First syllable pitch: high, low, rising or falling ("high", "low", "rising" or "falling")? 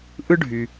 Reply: high